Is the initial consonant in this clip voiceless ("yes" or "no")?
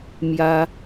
no